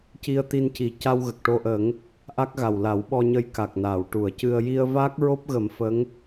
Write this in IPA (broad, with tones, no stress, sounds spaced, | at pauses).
c i˧ ə̯ t̪ i˧ n c i˨˩ c a˧ w ɣ ə˨˩ k̚ ʈ o˧ ʔ ə˨˩˦ ŋ | ʔ a˦˥ k̚ ɣ a˨˩ w l a˨˩˦ w ɓ ɔ˧ ɲ ə˧˥ j k a˨˩ k̚ n aː˨˩˨ w ʈ u˨˩˨ ə̯ c ɨ˧ ə̯ j i˧ ə̯ v aː˦˥ k̚ ɹ o˦˥ p̚ ɣ ə˨˩˦ m f ə˧˥ ŋ